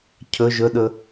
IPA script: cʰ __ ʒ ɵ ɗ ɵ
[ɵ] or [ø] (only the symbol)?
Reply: ɵ